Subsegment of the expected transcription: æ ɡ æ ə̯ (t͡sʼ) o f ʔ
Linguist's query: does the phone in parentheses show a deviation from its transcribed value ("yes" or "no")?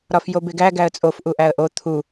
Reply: no